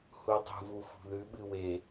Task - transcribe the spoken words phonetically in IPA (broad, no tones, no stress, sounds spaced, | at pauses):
h u dˤ ṳ v u f ṳ ð ʉ ɓ ɨ w e